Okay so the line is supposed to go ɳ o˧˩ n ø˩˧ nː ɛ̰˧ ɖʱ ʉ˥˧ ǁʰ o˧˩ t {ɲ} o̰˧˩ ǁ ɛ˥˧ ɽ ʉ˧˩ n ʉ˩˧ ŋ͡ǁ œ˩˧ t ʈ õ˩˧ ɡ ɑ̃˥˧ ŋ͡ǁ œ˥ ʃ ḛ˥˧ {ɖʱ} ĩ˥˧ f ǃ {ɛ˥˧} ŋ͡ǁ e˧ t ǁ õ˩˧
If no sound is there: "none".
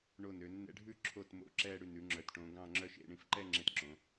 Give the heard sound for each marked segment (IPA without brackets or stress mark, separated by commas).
m, ɳ, ɛ˥˧